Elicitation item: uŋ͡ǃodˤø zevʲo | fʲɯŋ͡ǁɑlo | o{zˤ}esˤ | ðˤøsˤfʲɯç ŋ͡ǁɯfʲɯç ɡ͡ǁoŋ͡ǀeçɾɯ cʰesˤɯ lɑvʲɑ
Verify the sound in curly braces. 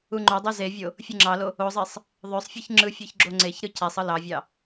correct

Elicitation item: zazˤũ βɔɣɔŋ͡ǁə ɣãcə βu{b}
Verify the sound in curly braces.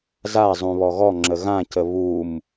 incorrect: m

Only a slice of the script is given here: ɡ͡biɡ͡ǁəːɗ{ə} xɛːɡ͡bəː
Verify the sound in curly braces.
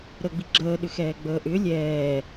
incorrect: ʏ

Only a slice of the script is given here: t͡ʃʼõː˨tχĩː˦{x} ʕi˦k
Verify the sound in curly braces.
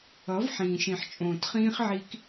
incorrect: χ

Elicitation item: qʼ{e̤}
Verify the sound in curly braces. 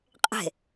correct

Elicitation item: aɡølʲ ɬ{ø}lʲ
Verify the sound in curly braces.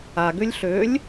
correct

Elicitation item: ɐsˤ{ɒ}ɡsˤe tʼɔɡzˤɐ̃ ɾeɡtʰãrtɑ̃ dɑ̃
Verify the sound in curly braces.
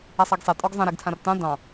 incorrect: ɑ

